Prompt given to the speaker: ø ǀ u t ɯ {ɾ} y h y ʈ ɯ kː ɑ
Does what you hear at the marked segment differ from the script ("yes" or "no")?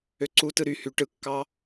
no